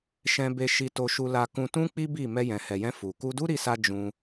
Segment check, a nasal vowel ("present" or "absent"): present